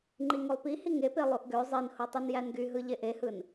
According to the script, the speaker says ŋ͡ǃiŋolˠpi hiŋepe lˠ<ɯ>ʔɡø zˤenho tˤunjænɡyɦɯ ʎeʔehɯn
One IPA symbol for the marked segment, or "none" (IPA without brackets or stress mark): u